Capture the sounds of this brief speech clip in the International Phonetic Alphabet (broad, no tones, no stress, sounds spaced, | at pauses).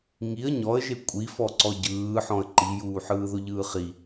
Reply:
ŋ i ə̯ ɲ ɔ ə̯ ʒ e kʷʼ i f ɔ ǀ ɔ ɟ ɯː ħ ɔ̃ ə̯ ǃ i j uː ħ ɯː ð ʊ ʎ ɯː χ i